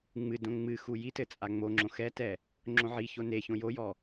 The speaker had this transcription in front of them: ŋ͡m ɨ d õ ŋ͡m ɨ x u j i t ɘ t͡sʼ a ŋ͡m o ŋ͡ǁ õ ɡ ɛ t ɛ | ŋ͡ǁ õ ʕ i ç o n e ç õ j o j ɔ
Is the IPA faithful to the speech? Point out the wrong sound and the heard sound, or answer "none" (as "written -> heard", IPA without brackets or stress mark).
ɡ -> x